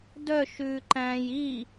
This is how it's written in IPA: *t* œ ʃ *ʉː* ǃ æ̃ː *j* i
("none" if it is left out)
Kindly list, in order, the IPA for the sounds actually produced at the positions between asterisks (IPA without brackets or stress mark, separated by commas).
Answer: d, ʉː, j